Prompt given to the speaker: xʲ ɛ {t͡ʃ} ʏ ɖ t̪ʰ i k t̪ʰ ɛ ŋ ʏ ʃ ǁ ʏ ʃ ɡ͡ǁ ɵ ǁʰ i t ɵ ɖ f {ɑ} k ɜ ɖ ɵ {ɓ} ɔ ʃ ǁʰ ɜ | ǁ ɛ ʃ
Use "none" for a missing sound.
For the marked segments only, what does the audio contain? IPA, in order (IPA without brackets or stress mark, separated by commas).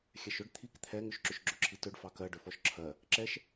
ʃ, ɑ, f